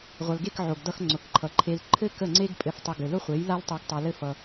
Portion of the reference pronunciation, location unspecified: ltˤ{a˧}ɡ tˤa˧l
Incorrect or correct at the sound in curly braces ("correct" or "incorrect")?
correct